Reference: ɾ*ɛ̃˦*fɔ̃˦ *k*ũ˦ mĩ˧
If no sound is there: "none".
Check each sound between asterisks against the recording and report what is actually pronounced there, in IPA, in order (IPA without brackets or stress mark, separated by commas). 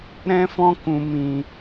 ɛ̃˦, k